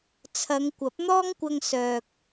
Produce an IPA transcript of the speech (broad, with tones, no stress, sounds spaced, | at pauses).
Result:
t͡sʰ ɐ˨˧ ŋ kʷ ɐ˨˥ p̚ n̪ ɔː˥ ŋ kʷ ɐ˧ ŋ s œː˨ k̚